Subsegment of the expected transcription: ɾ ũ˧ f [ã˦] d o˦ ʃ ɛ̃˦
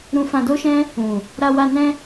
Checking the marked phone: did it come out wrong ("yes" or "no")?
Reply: yes